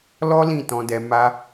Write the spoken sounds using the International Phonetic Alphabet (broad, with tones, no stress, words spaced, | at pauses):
lɔ˦lĩ˦˨tɔ̃˧dɛ˧ ma˧